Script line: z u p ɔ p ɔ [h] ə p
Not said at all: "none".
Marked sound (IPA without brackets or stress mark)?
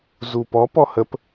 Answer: h